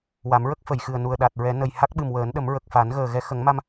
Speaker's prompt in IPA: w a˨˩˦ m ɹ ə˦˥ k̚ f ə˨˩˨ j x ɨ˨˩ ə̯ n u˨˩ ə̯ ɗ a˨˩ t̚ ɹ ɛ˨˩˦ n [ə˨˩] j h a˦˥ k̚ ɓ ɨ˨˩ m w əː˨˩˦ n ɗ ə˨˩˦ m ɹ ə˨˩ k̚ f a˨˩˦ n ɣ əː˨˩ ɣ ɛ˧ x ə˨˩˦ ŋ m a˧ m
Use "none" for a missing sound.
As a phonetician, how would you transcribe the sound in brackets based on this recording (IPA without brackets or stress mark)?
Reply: ə˨˩